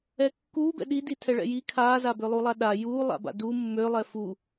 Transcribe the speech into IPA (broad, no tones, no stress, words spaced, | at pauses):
ɛkːuːbɛ̰ ɗidi tʰɛɭɛ̰ji kʰaːzabølˠu lˠaɗa juːlˠa̰ba̰ du mːølˠɛ fu